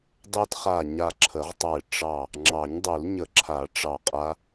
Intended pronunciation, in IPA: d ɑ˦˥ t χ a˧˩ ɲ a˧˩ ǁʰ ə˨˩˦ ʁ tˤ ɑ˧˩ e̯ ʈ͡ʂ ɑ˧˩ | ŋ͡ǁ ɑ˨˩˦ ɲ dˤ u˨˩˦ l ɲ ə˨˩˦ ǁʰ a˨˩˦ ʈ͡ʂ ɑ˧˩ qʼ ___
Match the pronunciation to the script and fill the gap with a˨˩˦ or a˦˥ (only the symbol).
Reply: a˦˥